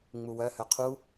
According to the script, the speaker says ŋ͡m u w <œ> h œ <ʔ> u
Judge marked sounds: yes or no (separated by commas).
yes, no